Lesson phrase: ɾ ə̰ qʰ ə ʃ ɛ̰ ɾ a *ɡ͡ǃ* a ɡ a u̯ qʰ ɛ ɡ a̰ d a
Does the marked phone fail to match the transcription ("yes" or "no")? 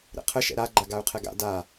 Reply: no